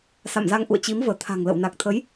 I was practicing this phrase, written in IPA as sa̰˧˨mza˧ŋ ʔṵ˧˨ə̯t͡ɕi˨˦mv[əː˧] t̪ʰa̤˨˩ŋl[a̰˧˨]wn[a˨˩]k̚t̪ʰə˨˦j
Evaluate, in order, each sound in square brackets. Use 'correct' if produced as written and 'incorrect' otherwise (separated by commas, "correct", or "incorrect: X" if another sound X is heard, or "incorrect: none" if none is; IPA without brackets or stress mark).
incorrect: əː˧˩, incorrect: ə̰˧˨, correct